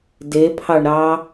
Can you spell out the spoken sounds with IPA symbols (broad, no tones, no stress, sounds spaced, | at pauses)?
d e pʰ ɑ ɳ ɾ ɑ